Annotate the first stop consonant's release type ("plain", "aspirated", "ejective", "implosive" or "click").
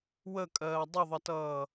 ejective